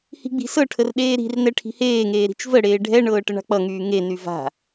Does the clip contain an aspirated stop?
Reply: yes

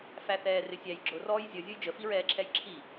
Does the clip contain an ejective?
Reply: no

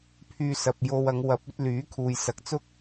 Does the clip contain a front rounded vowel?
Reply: yes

